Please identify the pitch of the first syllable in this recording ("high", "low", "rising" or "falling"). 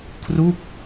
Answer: falling